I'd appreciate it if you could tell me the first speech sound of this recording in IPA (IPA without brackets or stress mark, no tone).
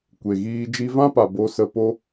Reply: kʷ